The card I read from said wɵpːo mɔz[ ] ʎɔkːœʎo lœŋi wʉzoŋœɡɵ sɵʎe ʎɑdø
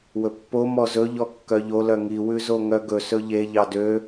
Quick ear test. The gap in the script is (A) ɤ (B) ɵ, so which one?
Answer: B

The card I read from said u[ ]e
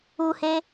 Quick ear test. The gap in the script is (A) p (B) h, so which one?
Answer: B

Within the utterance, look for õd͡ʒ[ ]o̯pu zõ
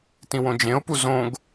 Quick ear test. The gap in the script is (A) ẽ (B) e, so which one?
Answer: A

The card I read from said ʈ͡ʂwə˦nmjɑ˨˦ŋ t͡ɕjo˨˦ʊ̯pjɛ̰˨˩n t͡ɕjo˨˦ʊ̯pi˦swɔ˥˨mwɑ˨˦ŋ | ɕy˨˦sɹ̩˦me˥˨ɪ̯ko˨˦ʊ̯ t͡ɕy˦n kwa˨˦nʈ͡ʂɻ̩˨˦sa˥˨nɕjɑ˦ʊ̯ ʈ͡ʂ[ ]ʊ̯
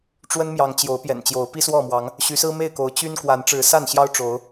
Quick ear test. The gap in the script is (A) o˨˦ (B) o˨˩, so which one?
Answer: A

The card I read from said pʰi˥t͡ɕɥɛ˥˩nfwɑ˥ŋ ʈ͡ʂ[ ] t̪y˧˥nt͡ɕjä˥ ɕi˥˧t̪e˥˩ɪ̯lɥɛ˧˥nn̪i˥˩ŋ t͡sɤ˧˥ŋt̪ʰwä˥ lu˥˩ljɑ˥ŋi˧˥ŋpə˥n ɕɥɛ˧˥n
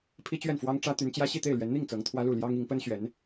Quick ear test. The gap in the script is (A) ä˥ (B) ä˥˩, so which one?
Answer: A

